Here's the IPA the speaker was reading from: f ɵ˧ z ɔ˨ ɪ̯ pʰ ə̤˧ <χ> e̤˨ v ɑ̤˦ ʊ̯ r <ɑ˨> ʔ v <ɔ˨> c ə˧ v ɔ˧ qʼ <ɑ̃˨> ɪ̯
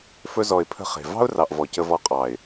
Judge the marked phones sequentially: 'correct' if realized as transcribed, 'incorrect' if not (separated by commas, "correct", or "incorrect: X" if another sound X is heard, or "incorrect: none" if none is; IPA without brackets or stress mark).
correct, correct, correct, incorrect: ɑ˨